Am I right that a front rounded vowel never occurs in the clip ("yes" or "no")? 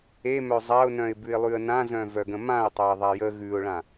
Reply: no